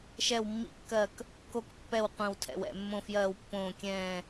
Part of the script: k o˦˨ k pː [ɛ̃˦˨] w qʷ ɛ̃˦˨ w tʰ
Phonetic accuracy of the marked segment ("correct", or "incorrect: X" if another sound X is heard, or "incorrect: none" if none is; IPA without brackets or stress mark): incorrect: ɛ˦˨